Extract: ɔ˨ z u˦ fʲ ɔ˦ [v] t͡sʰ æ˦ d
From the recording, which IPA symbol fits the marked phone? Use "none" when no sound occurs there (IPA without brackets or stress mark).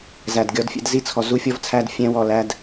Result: v